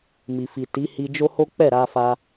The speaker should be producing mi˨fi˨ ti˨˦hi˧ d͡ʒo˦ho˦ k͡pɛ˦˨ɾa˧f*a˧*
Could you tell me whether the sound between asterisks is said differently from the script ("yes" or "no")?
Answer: no